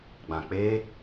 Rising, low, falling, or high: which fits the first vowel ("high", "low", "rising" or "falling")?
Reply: low